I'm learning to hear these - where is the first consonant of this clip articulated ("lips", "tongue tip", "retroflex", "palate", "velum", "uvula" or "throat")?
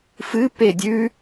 lips